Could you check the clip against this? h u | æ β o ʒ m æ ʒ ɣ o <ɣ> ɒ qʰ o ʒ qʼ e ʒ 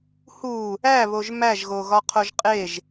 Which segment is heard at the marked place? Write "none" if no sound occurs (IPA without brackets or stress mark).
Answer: ɣ